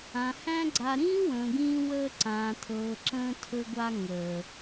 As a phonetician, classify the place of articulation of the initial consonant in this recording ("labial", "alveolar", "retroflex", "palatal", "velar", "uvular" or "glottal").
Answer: glottal